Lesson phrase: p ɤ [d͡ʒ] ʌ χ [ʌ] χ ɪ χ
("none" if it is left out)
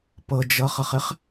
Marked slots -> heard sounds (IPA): d͡ʒ, ʌ

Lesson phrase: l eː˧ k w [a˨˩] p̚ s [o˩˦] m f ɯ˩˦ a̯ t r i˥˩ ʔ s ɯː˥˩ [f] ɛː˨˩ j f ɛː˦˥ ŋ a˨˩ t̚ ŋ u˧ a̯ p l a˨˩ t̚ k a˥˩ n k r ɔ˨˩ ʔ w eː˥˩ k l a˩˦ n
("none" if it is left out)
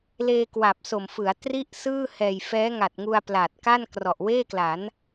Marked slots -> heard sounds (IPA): a˨˩, o˨˩, h

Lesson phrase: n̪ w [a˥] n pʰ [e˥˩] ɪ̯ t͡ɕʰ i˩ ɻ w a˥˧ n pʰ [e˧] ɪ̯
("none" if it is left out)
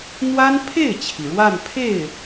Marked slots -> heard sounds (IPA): a˥, e˥˩, e˥˩

